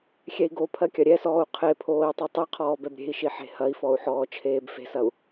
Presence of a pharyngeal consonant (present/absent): present